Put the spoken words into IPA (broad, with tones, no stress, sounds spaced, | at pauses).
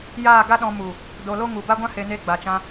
j aː˦˨ ɡ a˦ ɗ ɔ̃˧ m u˨ | d o˧ l o˦ ŋ u˨ b a˦ ɡʷ ã˦ h e˧ n e˧ ɡ͡b a˨ t͡ʃ ã˧